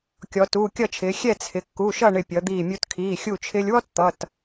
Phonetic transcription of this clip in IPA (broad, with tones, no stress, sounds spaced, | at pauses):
kʲ ɔ˩˧ t uː˩˧˩ kʲ ʌ˥˨ t͡ʃʰ ɪː˩˧ xʲ ɛ˥˨ t͡sʰ ɪ˩˧ kː u˩˧˩ ʃ ʌ˥˨ ɳ ɪ˧˩ pʲ ʌ˩˧ d̪ iː˧˩ mʲ u˧ t kʰ iː˩˧˩ xʲ u˧˩ t͡ʃʰ ɪː˧ lʲ w ɔ˥ t t̪ ʌ˩˧˩ t